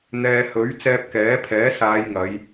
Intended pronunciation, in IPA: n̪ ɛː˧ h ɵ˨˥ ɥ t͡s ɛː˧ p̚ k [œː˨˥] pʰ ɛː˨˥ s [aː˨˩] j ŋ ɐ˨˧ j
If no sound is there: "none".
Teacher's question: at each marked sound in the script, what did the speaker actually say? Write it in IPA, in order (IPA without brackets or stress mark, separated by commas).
ɛː˨˥, aː˨˧